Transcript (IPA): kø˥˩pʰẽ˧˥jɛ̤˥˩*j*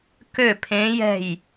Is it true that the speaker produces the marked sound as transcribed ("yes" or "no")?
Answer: yes